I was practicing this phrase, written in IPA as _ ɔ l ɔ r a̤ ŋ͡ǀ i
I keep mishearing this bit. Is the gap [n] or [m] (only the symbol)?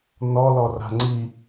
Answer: n